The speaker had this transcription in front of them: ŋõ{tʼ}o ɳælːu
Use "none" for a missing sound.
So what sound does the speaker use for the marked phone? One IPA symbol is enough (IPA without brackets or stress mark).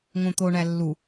t̪